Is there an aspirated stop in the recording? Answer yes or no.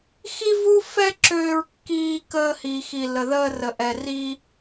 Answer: no